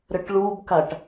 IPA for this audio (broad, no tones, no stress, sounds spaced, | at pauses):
ɾ ə ʈ ɭ u b k a ʈ